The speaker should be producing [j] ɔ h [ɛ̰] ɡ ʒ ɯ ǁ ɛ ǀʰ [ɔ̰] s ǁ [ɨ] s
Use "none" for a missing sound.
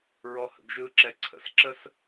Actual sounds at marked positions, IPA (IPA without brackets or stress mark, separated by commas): ɹ, ə̰, ə̰, ə